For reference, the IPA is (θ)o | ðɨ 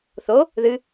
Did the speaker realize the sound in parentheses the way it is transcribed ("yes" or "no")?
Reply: yes